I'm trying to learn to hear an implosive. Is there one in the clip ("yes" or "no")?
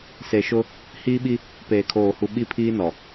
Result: yes